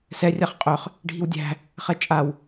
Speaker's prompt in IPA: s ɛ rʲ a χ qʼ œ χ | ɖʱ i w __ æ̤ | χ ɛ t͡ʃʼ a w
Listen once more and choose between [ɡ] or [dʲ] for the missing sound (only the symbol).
dʲ